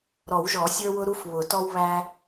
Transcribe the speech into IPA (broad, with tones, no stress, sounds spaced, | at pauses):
ɾ ɔ˨˩˦ w ʒ ɔ˨˩˦ sʲ ə˞˦ w ʊ˦ ɾ u˦ f β ʊ˨˩˦ t ɔ˦ w β æ˦